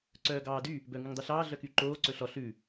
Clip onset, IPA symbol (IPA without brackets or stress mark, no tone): ǀ